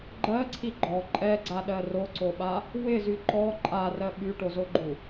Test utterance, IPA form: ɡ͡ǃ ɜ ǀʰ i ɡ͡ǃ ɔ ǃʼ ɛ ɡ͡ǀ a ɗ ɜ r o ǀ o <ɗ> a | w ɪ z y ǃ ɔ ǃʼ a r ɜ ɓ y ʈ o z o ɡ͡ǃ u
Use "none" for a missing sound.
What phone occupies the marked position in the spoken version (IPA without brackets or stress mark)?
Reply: ɓ